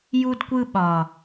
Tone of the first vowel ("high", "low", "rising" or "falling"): high